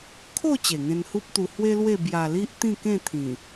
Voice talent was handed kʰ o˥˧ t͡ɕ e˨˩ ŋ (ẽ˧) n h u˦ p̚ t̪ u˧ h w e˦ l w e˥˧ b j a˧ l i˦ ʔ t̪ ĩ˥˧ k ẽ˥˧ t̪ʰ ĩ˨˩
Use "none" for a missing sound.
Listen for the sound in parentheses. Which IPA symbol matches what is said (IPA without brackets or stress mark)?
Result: ẽ˧